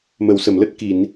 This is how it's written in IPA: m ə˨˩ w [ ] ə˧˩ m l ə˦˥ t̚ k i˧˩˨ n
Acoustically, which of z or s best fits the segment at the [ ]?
s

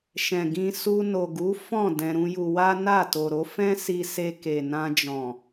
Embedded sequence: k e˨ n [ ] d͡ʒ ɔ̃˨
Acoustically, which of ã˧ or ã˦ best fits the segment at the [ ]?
ã˧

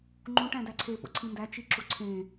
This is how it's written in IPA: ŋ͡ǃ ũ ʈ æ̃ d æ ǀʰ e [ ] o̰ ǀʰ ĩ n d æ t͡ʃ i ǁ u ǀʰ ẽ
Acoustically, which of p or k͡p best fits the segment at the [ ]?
p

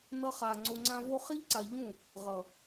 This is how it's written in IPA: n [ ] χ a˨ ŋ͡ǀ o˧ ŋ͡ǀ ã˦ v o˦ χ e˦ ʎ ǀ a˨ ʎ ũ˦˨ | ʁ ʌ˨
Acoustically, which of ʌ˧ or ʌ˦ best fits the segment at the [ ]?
ʌ˧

